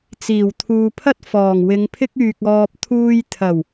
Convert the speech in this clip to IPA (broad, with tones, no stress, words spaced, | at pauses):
t͡siː˨˩wt̪ʰuː˨pʰɐ˥t̚ fɔː˨˩ŋwɪ˨˧ŋpʰɪ˥k̚yː˨k̚ ɔː˨p̚t̪ʰuː˧j t̪ʰɐ˨˩w